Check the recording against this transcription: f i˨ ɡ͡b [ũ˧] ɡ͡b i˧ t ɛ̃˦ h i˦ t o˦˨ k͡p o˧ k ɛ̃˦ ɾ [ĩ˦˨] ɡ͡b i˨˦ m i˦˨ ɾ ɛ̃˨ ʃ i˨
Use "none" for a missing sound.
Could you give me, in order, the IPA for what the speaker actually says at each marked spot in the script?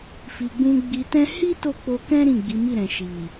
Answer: ũ˧, ĩ˦˨

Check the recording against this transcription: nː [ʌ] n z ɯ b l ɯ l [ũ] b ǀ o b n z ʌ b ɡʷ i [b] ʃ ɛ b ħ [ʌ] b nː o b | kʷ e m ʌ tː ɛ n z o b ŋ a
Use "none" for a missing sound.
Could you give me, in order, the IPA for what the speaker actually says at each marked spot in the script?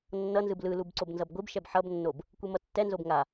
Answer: ʌ, u, b, ʌ

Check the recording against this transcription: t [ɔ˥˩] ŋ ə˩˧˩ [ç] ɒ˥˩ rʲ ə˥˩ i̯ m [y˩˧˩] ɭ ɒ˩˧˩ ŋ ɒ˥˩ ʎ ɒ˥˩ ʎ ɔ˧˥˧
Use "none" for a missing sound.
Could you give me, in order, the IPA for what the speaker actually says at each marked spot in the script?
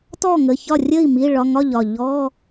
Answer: ɔ˥˩, ç, i˩˧˩

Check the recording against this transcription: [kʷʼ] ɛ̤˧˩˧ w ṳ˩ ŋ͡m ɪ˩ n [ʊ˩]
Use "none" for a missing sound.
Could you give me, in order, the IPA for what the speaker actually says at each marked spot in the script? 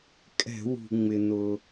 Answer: kʼ, ʊ˩

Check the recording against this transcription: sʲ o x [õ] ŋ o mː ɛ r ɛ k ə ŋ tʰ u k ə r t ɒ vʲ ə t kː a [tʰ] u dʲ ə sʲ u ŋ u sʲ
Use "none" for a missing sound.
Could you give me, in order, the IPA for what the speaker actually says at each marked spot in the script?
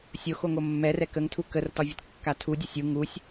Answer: o, tʰ

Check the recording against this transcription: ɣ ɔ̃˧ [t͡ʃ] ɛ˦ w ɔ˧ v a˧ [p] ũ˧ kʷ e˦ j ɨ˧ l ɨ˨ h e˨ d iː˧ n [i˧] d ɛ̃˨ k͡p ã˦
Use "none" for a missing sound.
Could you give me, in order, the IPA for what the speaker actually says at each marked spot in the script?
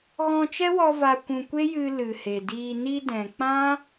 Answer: t͡ʃ, kʷ, i˧

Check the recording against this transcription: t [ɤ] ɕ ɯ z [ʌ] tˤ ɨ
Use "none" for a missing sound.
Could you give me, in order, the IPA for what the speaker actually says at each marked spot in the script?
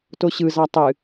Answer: o, ɑ

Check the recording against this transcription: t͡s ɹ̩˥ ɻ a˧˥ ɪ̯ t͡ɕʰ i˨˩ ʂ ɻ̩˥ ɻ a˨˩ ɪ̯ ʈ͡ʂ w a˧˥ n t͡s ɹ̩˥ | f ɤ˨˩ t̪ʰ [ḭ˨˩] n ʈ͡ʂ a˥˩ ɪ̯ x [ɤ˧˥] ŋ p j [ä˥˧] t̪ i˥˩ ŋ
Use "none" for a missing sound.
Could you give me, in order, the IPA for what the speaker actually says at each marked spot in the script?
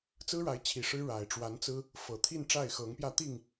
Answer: i˥˧, ɤ˧˥, ä˥˧

